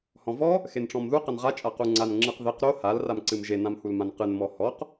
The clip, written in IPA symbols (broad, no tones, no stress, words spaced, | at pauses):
hɔ̃vɔ | xenʈ͡ʂɔ̃mðu qɐnʁa t͡ʃʼaquŋ͡ǀan ŋ͡ǁɨqðeq ɾo hal ramǀɨmʒe nãmhulmãnqɨn mɔhɔq